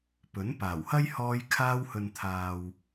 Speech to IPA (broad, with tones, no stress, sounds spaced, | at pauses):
p ɵ˨˥ n p aː˨˩ w h ɐ˥ j h ɔː˧ j kʰ aː˧ w h ɵ˨ n t̪ʰ aː˨ w